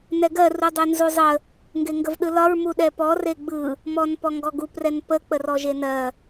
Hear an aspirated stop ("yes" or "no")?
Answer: no